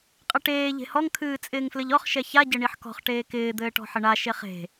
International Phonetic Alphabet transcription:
qʼɘʈeː ʎe̤hɔŋ kʰɨːt͡sʼɪːŋflɘʎɔχ ʃɛça ɟɘɳiħkɔ̤χ ʈeːkɪː d̪ɘːʈɔ̤ħɘɳa ʃeχe̤

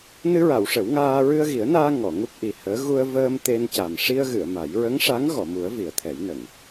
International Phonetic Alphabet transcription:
nɨ˧ɹa˨˩˨w ʂə˨˩˦wŋaː˧ ɹɨ˧ə̯ɣi˨˩˦ə̯naː˧ ŋɔ˨˩˨ŋu˦˥p̚ʔi˨˩həː˧˥ ɣu˧ə̯vəː˧m t̪e˧n ca˨˩m ʂi˧ə̯ɣɨ˨˩˨ə̯ ma˨˩˦j ɹə˧˥ŋʂa˧˥ŋ ɣɔ˨˩˨mu˨˩˦ə̯ vi˨˩ə̯t̪ʰɛ˨˩˦jnə˨˩˨ŋ

